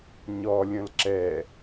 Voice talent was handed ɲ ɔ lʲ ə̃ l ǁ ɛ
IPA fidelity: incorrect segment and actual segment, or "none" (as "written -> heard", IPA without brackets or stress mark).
none